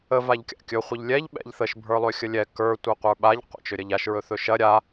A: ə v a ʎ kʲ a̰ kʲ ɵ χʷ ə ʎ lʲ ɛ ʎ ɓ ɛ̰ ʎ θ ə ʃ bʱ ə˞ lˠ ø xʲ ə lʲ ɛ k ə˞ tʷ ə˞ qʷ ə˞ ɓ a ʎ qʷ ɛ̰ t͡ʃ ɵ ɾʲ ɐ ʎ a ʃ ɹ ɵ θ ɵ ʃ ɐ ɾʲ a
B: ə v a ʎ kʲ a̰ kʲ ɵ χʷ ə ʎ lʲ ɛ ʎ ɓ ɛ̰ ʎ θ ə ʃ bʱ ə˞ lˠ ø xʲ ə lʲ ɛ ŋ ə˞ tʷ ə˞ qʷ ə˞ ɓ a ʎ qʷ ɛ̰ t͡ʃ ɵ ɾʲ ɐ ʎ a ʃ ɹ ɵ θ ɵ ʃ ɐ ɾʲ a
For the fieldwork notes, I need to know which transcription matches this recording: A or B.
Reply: A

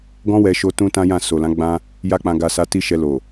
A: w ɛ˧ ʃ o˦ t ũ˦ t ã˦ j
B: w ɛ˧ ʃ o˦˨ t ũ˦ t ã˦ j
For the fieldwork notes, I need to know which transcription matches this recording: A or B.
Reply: A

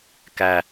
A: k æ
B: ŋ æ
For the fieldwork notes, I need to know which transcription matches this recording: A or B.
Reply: A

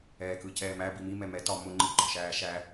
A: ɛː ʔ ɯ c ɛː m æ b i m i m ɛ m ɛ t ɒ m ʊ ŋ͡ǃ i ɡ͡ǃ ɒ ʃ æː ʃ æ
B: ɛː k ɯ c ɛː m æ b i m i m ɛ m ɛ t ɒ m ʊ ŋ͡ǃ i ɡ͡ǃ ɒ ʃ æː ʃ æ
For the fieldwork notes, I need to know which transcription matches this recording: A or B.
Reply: B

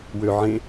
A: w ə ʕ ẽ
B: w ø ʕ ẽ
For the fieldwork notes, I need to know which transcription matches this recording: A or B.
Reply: B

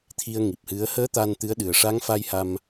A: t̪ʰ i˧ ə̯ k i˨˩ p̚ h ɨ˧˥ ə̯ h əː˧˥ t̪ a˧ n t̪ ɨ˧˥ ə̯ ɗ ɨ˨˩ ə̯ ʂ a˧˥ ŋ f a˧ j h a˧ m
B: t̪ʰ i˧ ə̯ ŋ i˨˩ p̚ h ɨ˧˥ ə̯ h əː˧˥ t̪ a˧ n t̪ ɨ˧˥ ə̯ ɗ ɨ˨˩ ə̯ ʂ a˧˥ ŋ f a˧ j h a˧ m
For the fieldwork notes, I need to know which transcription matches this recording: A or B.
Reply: B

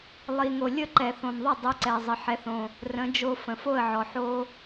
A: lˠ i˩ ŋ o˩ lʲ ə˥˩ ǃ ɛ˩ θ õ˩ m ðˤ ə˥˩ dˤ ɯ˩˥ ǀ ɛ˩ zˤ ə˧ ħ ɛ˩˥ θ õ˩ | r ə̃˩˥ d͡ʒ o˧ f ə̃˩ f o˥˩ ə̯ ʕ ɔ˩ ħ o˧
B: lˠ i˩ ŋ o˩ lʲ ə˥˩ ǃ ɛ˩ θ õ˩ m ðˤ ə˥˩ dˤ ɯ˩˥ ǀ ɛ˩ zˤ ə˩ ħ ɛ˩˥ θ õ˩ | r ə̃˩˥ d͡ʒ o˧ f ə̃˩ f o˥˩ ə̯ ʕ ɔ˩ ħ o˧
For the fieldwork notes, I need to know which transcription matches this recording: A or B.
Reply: B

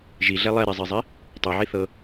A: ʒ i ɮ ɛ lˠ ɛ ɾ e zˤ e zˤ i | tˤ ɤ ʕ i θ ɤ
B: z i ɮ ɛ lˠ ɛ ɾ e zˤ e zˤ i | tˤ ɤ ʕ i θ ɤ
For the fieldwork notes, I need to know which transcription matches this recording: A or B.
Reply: A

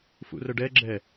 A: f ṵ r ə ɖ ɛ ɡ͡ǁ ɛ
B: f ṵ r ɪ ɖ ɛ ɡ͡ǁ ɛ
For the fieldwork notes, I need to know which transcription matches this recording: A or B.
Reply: A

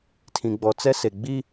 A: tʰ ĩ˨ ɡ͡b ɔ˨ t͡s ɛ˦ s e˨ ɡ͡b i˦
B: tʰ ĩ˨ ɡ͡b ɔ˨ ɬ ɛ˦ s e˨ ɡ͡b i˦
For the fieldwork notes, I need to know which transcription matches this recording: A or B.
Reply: A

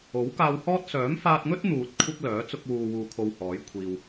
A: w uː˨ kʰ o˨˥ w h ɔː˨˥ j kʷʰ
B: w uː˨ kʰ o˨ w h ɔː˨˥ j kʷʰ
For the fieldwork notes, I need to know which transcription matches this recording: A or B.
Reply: B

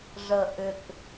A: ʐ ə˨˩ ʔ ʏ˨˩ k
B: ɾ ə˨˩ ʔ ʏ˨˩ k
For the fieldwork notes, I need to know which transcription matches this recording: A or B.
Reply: A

